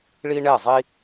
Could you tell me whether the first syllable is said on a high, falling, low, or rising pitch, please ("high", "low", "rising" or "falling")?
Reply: high